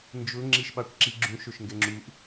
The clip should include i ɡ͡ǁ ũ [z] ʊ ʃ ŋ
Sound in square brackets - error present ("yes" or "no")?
yes